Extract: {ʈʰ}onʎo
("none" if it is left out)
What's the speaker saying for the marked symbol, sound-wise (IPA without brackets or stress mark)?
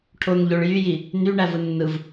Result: ʈʰ